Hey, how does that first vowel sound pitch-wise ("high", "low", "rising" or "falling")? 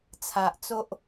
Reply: low